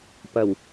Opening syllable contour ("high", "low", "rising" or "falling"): low